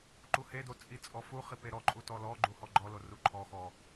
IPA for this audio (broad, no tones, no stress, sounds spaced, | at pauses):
ǃ u h e d o t͡sʼ i t͡sʼ ɔ f u χ i p e ɾ ɔ ǃʼ u t ɔ l ɔ ɡ͡ǃ u h ɔ ɡ͡ǃ ɔ l o r u ǃʰ ɔ x ɔ